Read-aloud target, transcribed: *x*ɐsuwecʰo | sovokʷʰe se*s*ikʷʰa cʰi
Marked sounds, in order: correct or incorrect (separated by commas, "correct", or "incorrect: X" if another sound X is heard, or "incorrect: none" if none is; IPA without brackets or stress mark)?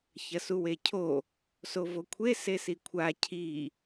incorrect: ç, correct